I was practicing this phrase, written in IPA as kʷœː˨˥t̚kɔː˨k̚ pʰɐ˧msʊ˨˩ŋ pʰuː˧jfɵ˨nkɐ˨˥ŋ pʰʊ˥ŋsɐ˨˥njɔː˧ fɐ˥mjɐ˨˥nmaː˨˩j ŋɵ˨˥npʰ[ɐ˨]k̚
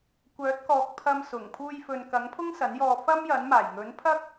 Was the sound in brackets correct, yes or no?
no